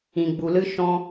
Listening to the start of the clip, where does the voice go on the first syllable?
low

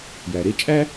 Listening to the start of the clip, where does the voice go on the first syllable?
low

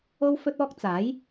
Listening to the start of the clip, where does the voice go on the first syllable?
high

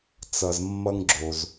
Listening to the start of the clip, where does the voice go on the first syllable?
low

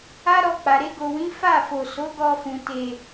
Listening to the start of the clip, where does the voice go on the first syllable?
high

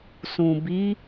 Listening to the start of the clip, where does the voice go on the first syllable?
low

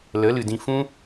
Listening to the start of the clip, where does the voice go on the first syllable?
rising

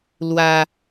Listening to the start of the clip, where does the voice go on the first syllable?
high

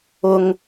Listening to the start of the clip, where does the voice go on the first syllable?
low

